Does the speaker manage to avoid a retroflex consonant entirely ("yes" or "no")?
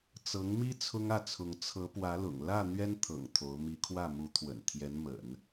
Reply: yes